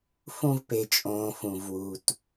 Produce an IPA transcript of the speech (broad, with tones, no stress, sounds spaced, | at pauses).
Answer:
f ũ˦ v p e˨ t͡ʃʼ õː˨ f ũ˨ v w u˨ t